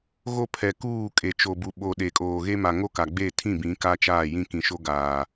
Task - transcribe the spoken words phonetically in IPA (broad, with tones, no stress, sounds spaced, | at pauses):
ɣ o˦ pʰ ɛ˨ k uː˦˨ kʼ e˨ t͡ʃ o˨ b u˨ ɓ o˨ ɗ e˨ kʼ oː˨ ɣ e˦ m a˨ ŋ o˦ k a˨ ɡ͡b e˦˨ tʰ ĩ˦˨ b ĩ˨˦ k a˦ t͡ʃ aː˦˨ j ĩ˦ k ĩ˨ ʃ o˦ ɡ aː˨